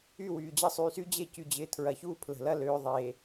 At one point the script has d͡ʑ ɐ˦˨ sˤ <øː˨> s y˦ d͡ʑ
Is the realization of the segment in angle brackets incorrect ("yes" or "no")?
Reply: yes